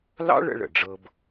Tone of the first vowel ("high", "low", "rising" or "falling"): high